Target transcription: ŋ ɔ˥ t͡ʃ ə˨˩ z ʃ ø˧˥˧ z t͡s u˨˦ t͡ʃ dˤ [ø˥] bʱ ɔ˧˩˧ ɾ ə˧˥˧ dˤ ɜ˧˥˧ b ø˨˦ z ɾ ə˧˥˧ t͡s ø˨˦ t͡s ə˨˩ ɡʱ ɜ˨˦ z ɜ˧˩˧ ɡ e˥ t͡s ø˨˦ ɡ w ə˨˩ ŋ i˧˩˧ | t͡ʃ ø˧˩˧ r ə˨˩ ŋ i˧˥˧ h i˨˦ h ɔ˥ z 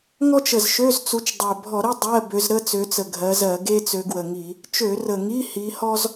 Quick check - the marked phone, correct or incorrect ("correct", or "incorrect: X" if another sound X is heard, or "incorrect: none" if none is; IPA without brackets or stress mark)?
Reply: incorrect: ø˨˩